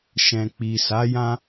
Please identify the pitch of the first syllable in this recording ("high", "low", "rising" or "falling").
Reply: low